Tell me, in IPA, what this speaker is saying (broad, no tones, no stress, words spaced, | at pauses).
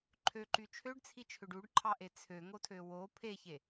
ǃʰøǃy t͡ʃʰøɖt͡sʰit͡ʃʰøɖ uɖǃʰɑʔe t͡sʰøŋotʰø wo pʰeçe